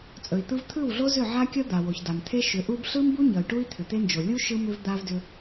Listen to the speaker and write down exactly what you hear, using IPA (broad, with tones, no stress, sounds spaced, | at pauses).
t͡sʼ ɵ˨ i̯ t̪ ɯ˦ v t̪ʰ ɯ˦˨ w ɮ o˦ z ʏ˦˨ ʕ a˦ kʲ ʌ˦ d̪ a˨ w o˨ ç d a˨ m t̪ʰ e˦ ʃ ʏ˨˦ ʔ u˦ b ɬ ɯ˦ m b u˦ ɲ ʌ˨ y̯ ʈ u˦ i̯ t̪ʰ ʏ˨ t̪ e˦ n d͡ʒ o˨ lʲ u˦ ʃ ɯ˦ m ʏ˦ v d̪ a˦ v d ʏ˦